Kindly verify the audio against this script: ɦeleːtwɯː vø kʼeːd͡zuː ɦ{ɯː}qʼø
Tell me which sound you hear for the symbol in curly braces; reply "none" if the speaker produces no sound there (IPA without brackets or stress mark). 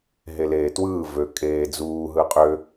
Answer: ɯ